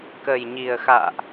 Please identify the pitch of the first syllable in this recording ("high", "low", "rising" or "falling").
low